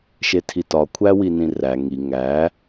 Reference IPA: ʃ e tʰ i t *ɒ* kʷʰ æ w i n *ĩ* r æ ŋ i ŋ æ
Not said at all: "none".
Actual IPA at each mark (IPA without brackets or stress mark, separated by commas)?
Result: ɒ, ĩ